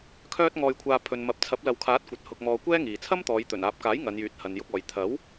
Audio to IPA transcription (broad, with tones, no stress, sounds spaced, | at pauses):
kʰ œː˧ t̚ ŋ ɔː˧ j kʷʰ aː˧ pʰ ɵ˨ n m ɐ˨ p̚ t͡sʰ ɐ˨˥ p̚ l ɐ˨ w kʰ aː˨˥ t̚ kʷ ɐ˨ t̚ h ʊ˧ k̚ m ɔː˧ kʷ ɛː˥ ŋ iː˨ t͡sʰ ɐ˥ m t̪ ɔː˨˧ j t̪ ɵ˨˩ n aː˨ p̚ k aː˨˥ j ŋ ɐ˨˧ n j yː˨˥ t̚ h ɐ˨ n j ʊ˧ k̚ ɔː˨ j t̪ʰ ɐ˨˥ w